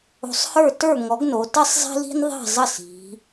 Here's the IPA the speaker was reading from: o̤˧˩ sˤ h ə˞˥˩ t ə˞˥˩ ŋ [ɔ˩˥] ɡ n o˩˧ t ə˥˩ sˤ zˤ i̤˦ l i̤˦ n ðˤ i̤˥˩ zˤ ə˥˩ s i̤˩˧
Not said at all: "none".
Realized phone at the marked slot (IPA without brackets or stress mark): ɔ˩˥